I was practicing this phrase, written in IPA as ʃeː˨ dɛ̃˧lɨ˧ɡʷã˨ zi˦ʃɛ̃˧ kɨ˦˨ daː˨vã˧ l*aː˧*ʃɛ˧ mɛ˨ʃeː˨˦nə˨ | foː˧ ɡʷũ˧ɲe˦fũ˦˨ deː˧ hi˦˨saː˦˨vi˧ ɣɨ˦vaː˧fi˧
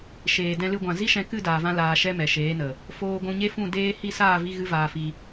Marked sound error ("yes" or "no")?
yes